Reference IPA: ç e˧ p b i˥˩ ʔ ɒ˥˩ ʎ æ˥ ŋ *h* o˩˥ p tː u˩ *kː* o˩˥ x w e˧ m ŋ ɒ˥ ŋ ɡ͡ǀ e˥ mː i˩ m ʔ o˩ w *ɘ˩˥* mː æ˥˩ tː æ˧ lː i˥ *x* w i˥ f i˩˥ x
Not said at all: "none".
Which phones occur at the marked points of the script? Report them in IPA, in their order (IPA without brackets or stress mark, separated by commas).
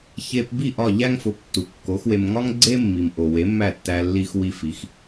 f, kː, e˩˥, x